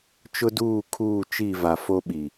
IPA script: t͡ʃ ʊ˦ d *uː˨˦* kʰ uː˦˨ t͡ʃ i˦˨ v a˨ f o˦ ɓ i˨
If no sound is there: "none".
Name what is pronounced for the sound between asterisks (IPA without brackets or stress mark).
uː˦˨